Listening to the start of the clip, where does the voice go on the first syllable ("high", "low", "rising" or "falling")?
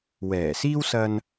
low